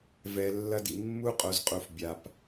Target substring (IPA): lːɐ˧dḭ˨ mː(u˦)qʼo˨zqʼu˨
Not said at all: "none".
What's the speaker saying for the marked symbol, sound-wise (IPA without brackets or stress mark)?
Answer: u˦